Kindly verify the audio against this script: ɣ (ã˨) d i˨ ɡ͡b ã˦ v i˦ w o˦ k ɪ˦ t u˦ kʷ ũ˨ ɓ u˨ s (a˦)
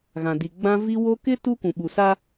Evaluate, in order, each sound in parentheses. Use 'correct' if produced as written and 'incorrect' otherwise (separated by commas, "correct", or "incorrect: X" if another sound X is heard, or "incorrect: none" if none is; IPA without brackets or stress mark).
correct, correct